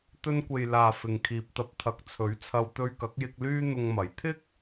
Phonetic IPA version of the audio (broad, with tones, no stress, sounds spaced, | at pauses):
t̪ ɵ˧ n kʷ e˨ j l aː˨ f ɪ˨ ŋ kʰ iː˨ p̚ t̪ ɐ˧ p̚ t̪ʰ ɐ˨˥ k̚ t͡sʰ ɵ˨˥ ɥ t͡sʰ ɐ˧ w t̪ ɵ˧ ɥ k ɐ˨˥ k̚ j ɪ˧ k̚ l yː˥ n̪ ʊ˧ ŋ m ɐ˨˥ j t̪ʰ ɪ˥ k̚